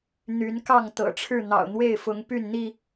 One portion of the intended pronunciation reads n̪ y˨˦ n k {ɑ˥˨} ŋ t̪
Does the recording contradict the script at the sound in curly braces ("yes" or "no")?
no